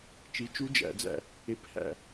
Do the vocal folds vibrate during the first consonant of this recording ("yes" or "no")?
no